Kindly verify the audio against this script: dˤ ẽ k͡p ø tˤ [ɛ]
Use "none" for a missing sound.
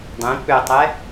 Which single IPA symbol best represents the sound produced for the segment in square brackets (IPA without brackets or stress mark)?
ɛ